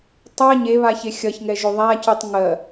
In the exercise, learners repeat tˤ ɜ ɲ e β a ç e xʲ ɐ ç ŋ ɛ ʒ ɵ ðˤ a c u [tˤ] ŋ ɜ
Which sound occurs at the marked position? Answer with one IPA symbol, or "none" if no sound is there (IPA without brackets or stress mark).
tˤ